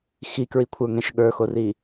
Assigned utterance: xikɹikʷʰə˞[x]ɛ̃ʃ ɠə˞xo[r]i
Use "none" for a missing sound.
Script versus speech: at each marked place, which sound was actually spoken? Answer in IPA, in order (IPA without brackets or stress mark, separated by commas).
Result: ŋ, r